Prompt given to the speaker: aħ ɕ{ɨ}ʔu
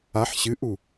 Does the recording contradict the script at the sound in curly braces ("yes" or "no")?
no